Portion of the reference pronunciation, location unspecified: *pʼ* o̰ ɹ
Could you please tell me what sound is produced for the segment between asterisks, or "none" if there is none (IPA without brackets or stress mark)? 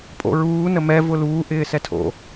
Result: pʼ